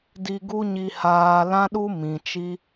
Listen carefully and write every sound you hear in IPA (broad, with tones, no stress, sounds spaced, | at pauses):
d i˧ ɡ u˦ ɲ i˧ h aː˧ l ã˦ ɗ u˦ m ĩ˨ t͡ʃ i˦